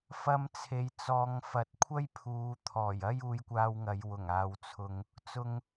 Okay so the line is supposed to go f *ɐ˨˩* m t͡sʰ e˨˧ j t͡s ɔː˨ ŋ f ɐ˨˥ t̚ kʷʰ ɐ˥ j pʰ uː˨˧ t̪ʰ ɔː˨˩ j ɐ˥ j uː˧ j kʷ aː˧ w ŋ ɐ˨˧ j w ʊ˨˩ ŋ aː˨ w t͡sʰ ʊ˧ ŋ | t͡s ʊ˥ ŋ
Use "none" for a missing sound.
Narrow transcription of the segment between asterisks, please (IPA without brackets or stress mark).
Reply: ɐ˧